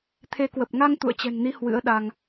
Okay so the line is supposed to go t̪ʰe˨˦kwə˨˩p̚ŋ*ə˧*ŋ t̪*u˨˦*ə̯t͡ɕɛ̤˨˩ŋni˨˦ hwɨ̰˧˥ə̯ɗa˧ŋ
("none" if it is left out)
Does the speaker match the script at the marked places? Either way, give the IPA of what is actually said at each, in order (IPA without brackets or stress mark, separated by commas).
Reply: a˧, ṵ˧˨